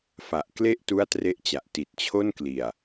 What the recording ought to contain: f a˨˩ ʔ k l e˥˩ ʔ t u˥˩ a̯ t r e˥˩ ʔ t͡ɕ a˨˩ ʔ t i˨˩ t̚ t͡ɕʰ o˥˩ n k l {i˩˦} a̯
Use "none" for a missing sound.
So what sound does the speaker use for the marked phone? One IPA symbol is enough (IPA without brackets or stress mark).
i˨˩